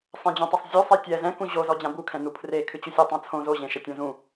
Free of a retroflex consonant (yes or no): yes